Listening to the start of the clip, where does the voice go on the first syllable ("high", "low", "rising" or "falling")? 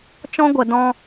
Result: high